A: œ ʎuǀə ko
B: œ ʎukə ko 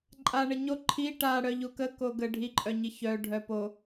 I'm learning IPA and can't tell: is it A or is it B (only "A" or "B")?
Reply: B